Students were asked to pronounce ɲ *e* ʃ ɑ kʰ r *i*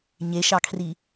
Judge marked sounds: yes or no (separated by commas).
yes, yes